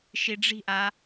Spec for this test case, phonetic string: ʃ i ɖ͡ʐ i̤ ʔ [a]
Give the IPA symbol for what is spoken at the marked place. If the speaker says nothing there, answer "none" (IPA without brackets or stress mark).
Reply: a